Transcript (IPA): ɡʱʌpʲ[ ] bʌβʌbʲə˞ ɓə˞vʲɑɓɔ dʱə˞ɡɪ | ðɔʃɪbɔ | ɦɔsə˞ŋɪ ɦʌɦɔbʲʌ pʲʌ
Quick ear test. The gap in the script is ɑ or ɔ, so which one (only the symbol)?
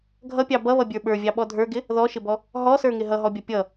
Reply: ɑ